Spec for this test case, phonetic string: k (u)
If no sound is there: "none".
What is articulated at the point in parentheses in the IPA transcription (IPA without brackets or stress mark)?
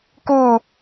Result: u